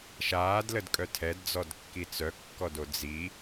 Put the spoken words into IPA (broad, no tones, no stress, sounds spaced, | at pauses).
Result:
ʃ aː d l ə d kʼ œ tʰ ɛ d d͡z ɔ d kː i t͡s œ kː ɔ d o d͡z i